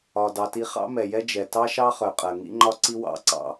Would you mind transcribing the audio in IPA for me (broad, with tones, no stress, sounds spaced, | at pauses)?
ɒ˩ d ɑ˩ t i˧ χ ɑ̰˥ m ɛ˩ j ɛ˥ d͡ʒ ɛ˩ t ɑ˥ ʃ ɑ˥ χ œ˩ qʼ ɜ˩ ŋ ḭ˥ ŋ͡ǃ ɒ˥ ǀ i˥ w ɑ̰˧ ǀ ɑ̰˧